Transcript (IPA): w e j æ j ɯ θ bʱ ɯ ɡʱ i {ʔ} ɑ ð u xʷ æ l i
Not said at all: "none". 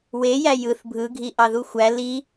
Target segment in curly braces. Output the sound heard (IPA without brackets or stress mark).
ʔ